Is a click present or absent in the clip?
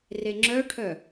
present